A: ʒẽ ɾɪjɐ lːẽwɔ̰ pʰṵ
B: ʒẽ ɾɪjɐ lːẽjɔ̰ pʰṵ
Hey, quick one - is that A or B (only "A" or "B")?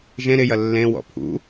A